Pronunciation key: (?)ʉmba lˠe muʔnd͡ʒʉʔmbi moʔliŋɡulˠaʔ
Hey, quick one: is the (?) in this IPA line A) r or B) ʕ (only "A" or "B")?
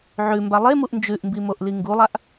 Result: B